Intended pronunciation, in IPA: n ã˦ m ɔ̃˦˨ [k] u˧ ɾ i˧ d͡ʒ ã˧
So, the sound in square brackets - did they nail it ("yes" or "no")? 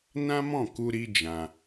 yes